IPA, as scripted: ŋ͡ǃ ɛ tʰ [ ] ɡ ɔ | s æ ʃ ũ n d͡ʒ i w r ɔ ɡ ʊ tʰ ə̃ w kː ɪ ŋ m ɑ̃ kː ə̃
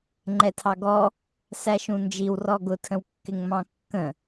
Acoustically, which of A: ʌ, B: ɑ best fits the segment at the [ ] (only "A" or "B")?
B